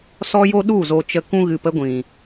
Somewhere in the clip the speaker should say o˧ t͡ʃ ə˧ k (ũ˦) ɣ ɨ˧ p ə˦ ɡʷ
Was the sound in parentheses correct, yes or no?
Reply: yes